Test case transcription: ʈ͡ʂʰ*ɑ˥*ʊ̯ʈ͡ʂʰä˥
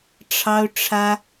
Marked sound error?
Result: no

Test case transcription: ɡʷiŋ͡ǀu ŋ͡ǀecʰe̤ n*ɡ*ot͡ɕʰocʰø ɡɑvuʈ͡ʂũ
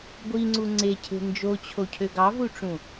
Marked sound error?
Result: yes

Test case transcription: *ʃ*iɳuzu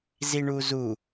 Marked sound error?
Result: yes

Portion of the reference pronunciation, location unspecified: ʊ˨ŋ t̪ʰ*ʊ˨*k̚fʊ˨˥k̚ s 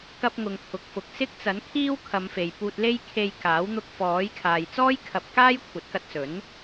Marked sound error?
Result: no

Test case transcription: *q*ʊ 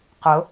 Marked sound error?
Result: no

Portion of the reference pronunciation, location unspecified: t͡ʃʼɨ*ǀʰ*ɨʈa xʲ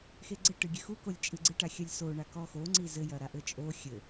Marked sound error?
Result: yes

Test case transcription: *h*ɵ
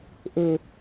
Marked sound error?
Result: yes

